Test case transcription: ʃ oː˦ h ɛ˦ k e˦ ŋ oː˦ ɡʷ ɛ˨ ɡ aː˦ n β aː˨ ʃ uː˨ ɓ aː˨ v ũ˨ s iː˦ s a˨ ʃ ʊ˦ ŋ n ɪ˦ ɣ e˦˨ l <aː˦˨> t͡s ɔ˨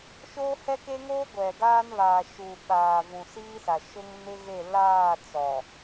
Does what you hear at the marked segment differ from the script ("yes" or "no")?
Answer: no